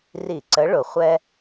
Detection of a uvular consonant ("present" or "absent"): present